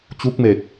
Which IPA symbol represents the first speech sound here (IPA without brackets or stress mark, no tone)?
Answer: t͡ɕ